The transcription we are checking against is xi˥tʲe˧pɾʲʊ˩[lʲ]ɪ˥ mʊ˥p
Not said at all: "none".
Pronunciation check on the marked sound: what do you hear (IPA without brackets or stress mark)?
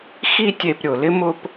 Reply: l